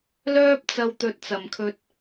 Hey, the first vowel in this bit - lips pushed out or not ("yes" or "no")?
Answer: yes